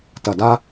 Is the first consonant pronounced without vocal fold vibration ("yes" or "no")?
yes